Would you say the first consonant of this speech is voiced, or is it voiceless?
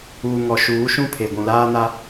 voiced